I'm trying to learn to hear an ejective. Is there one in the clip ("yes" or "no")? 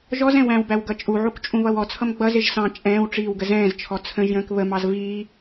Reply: yes